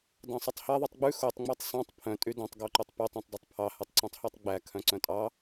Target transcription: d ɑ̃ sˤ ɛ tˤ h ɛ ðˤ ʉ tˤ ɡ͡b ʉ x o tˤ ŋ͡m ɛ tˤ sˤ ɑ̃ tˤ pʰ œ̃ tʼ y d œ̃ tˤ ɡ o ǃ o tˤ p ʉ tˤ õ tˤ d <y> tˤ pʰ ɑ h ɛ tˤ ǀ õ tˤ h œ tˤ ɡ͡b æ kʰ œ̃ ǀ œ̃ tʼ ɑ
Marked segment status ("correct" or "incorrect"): correct